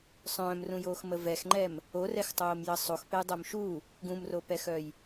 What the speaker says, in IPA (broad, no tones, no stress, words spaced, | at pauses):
sˤœ̃ːmrũjoːxmə vɛxŋ͡ǃɛm | orɛxtˤoːmjə sˤoxpɛjdˤœm ʃu | ɡũmropɛxœj